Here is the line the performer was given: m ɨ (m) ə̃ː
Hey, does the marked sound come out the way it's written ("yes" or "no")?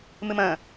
yes